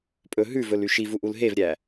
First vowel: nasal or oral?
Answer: oral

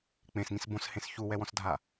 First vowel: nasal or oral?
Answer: nasal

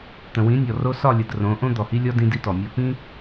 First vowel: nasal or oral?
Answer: nasal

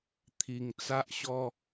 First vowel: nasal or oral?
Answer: oral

